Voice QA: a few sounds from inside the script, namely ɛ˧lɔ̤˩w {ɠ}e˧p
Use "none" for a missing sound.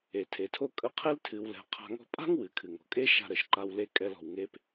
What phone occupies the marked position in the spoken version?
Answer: ŋ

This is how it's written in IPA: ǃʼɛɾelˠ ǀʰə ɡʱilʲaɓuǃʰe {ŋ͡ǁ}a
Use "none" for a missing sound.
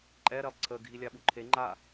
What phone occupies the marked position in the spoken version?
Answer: ŋ͡ǃ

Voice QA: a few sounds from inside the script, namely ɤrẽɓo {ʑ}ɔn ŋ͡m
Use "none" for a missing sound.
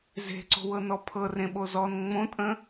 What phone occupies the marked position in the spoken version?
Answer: z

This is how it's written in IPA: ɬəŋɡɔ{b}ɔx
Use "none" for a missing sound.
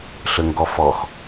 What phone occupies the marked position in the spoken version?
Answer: f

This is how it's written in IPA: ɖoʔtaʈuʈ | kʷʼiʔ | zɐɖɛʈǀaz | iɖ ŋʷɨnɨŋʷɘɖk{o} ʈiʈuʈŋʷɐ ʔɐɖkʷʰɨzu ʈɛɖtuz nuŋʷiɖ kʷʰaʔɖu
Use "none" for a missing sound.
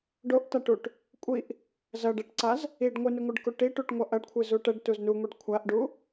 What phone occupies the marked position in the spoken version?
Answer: u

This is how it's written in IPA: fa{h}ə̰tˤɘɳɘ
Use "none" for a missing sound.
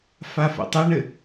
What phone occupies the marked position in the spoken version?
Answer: f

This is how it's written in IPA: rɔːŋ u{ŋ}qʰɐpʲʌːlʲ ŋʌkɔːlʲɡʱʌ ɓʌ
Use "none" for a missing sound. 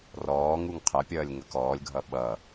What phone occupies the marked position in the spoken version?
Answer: ŋ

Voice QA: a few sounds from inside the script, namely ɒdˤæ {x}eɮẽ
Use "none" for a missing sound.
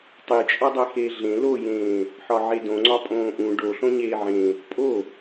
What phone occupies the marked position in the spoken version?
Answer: x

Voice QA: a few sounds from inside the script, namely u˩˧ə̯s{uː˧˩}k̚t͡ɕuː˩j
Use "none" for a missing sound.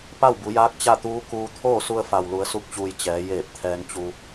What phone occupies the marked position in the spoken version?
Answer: u˧˩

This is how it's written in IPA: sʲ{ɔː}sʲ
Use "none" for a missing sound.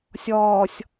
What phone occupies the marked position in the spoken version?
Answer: ɔː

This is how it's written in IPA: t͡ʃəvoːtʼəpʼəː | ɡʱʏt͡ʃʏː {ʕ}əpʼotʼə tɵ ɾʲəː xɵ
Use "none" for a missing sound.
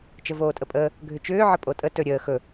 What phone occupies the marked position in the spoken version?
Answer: ʕ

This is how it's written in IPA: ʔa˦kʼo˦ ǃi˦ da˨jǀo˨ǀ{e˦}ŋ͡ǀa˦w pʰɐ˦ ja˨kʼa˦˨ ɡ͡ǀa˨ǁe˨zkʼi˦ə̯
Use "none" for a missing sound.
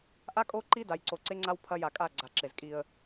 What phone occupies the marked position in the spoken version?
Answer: e˦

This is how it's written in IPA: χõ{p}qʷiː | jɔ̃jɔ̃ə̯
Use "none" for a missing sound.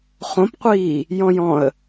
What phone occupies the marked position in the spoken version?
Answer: p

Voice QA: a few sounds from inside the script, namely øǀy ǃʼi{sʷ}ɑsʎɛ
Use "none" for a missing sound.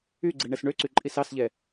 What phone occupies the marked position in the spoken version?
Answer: s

